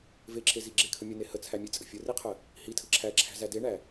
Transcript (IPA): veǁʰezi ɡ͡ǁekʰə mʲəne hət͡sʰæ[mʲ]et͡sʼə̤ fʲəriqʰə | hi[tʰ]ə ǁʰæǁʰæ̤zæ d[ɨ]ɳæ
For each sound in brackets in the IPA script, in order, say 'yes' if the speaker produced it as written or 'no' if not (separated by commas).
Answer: yes, yes, no